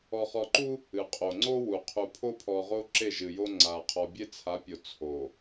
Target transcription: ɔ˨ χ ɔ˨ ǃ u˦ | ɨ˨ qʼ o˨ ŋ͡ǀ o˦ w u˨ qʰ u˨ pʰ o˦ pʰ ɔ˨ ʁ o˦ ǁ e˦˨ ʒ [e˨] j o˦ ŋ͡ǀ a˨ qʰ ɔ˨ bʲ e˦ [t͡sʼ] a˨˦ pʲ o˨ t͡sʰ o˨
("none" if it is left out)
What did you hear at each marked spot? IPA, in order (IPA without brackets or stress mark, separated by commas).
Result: ɨ˨, t͡sʰ